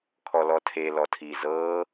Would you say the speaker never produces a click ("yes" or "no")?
yes